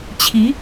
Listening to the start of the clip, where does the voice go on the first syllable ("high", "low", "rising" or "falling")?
rising